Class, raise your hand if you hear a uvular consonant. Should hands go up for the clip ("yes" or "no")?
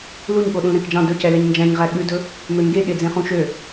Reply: yes